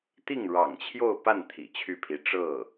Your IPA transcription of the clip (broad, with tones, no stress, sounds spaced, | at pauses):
t̪ i˥˩ ŋ ɻ ɑ̰˨˩ ŋ t͡ɕʰ j o˥˧ ʊ̯ p a˥˩ n t̪ʰ ḭ˨˩ t͡ɕʰ y˥˩ pʰ i˧˥ ʈ͡ʂ ɤ˥˩